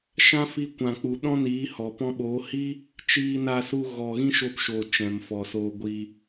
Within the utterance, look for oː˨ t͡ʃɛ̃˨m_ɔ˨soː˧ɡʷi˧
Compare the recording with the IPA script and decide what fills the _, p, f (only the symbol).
f